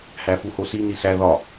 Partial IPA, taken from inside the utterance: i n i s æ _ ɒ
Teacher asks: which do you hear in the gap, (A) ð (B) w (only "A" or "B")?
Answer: A